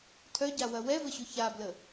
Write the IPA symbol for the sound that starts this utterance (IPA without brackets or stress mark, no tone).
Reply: tʰ